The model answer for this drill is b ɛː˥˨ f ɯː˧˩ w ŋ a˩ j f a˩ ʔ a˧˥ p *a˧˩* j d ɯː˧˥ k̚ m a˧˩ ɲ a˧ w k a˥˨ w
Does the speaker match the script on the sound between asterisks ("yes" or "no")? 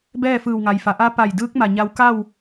yes